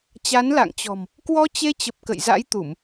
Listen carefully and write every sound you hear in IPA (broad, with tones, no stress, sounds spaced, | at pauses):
t͡ɕ a˨˦ n l a̰˧˨ ŋ t͡ɕ ɔ̤˨˩ m | k w ɔ˧ t͡ɕ e˧ t͡ɕ ə˨˩ p̚ k ə̰˧˨ j z a̰˧˥ j t̪ u˧˩˨ m